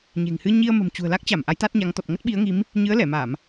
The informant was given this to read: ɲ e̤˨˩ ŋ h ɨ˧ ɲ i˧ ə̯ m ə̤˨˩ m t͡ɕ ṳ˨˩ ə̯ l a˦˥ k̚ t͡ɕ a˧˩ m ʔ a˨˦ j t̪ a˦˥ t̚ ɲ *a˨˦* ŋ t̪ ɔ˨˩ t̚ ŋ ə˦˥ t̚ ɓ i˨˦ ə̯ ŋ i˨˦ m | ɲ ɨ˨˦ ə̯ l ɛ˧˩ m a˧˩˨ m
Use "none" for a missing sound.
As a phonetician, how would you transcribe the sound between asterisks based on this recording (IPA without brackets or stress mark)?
a˨˦